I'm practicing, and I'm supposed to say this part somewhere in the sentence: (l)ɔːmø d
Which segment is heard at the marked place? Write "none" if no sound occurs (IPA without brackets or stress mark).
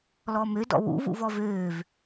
l